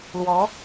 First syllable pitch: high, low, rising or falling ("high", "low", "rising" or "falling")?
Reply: rising